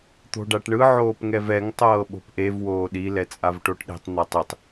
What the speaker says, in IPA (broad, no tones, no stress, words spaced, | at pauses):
t̪o̤ɖaʈɳɯ ʕoːpŋɛvɛŋ tˤɤːɓo̤pʔev woːɗi lɛt͡sʼavʈoʈɗe̤tˤ n̪atˤitˤ